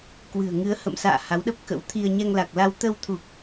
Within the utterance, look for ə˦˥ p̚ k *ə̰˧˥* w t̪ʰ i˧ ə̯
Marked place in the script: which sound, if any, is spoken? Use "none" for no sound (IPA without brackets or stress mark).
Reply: ə̰˧˥